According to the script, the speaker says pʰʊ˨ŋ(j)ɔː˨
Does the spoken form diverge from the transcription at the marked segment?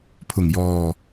no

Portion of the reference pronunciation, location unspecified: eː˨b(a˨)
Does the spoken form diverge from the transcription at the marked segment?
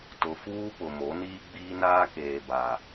no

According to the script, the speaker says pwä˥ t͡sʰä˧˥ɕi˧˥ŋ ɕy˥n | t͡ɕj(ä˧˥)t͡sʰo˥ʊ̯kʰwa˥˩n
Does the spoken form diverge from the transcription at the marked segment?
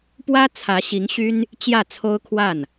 yes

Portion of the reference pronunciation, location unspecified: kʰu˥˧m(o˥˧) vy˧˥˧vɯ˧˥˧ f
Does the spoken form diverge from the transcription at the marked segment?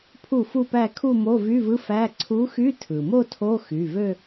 yes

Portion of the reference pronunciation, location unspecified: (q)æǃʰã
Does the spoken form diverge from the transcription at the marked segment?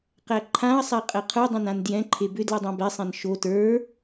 no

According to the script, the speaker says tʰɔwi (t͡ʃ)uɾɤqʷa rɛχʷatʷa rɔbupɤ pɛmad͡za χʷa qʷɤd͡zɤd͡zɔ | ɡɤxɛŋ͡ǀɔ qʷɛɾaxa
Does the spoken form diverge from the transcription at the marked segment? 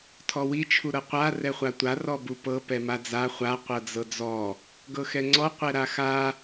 yes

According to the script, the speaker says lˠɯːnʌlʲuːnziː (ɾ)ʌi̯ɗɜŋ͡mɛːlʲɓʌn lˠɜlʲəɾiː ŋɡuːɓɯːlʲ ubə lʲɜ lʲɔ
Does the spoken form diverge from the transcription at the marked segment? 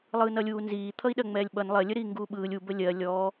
yes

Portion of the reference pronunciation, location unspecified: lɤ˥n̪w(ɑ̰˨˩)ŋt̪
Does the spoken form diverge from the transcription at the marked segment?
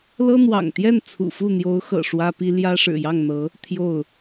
no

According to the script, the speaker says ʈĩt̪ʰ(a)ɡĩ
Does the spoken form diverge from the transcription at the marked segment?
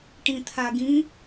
no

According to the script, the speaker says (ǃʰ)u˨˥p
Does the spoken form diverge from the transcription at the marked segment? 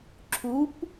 yes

